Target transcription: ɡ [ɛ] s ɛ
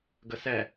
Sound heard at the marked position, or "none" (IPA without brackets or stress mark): ə